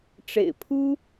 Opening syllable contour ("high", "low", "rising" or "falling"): low